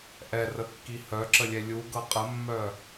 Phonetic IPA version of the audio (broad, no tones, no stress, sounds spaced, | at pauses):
ʔ ɛ r ə kː i h œ ǁ ə lʲ ɛ lʲ u ɡ ɤ qʼ ə mː œ